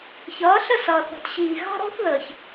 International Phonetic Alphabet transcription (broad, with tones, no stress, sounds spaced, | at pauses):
ç ʌː˨˦ ɬ ə˦˨ s ʌː˨ θ ɔ̤˨ t ɕ iː˨ ɣ ɑ̤˦ ɾ ɔ̤˦ θ ð əː˨ ç